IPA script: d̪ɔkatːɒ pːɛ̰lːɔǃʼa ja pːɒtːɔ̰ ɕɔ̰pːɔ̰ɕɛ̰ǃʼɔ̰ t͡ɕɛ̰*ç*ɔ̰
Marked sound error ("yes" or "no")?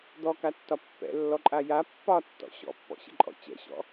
yes